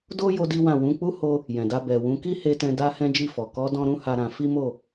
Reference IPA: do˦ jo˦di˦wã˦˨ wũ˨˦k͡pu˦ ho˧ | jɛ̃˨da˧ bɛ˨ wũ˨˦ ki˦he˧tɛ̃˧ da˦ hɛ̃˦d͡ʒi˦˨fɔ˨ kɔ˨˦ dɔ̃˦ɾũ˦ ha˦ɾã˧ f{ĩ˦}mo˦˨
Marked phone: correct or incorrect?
incorrect